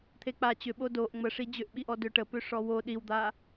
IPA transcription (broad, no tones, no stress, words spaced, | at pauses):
t̪ʰek͡pa t͡ɕʏɓo doʔ ŋ͡məʂi d͡ʑʏʔɓiʔɔ døʈə pøʂɔwo ɗiwd̪a